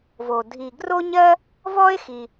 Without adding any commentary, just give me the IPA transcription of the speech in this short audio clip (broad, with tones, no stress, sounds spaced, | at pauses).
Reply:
v o˩ dʱ i˩ ɡ r o˥ ɲ ɜ˥ | v ɔ˥ e̯ x i˩